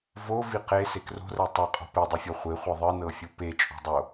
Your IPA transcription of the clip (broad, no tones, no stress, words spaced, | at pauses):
vo viqe sekro̤rɜ tˤɜqʼɔ̤ pedˤifʲɔ χʷeχʷɤ ðˤɨnɤfʲu pet͡ʃʼo̤dˤo